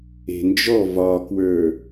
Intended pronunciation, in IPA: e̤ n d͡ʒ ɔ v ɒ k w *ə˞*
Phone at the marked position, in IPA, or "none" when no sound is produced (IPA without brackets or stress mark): ə˞